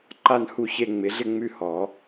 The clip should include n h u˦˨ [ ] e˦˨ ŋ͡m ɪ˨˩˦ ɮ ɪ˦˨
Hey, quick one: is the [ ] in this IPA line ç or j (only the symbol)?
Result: ç